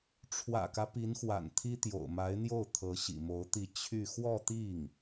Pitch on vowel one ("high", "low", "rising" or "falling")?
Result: low